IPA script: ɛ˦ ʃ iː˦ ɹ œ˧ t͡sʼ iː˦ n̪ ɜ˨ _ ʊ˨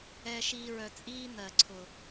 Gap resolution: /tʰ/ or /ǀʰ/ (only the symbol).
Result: ǀʰ